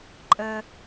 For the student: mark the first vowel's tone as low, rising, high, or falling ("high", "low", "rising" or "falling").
low